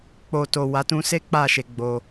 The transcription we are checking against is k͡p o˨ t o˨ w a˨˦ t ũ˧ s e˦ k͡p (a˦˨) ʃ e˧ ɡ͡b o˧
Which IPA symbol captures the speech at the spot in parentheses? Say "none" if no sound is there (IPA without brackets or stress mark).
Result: a˦˨